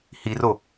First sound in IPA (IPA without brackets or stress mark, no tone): h